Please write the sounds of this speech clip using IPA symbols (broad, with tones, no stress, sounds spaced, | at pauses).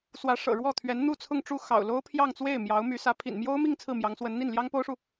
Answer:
s w ä˧˥ ʂ ɤ̰˨˩ ɻ w ɔ˥˩ t̪ʰ ɥ ɛ˧˥ n n̪ u˥˧ t͡sʰ ʊ˥˧ ŋ ʈ͡ʂ u˥˩ x ɑ̰˨˩ ʊ̯ l o˥ ʊ̯ pʰ j ɑ˥˧ ŋ t͡s w e˥˩ ɪ̯ m j ɑ˧˥ ʊ̯ m y˧˥ s ä˧˥ pʰ ḭ˨˩ n m j o˥ ʊ̯ m i˥˧ ŋ t͡sʰ ɹ̩˥˩ m j ɑ˧˥ ŋ s w ə˧˥ n n̪ i˥˩ n l j ɑ˥ ŋ p o˥ ʊ̯ ʂ u˨